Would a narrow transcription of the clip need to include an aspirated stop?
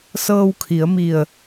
yes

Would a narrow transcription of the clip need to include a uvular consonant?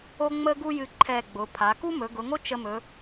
no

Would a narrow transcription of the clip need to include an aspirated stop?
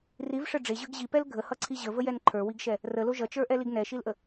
yes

